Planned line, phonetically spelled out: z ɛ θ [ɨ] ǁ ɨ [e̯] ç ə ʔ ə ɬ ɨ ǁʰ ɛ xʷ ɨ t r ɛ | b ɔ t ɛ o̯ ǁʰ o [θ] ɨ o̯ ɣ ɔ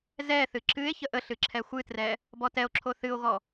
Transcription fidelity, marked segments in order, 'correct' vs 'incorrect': correct, correct, correct

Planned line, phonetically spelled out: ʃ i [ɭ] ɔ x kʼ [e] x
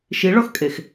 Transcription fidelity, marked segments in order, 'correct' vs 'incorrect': correct, correct

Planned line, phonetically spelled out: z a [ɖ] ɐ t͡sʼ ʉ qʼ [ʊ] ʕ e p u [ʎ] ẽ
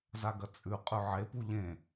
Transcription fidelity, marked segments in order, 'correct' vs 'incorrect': incorrect: ɡ, incorrect: ʉ, correct

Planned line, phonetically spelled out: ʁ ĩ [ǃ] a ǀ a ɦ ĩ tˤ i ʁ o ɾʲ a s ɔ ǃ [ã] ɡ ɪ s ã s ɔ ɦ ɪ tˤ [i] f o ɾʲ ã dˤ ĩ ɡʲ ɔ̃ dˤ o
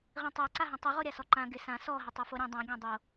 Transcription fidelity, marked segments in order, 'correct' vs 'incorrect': incorrect: tˤ, correct, correct

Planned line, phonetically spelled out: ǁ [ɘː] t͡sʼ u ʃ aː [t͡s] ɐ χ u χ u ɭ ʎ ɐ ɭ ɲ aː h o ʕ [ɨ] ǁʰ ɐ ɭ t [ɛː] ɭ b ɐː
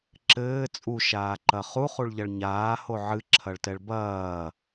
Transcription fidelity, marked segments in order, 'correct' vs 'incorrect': correct, incorrect: ǃ, correct, incorrect: ɛ

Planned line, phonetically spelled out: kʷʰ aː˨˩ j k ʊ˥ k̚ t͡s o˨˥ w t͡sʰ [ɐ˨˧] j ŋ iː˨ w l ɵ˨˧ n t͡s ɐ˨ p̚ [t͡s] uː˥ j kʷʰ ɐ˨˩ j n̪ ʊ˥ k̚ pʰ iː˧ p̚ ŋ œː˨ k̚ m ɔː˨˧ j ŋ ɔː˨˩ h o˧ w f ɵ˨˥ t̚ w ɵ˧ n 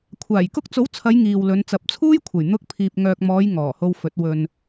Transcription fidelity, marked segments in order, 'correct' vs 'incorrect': correct, incorrect: t͡sʰ

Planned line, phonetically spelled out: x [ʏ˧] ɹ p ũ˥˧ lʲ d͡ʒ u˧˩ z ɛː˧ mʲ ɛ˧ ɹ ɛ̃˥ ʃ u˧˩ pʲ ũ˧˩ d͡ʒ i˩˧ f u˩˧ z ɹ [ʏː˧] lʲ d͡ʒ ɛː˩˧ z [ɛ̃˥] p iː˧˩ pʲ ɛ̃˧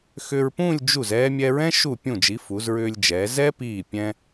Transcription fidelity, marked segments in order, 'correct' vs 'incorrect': correct, correct, incorrect: ɛ˥

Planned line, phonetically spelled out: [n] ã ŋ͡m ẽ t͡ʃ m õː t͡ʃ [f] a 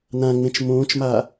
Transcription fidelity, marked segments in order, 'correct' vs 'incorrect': correct, incorrect: m

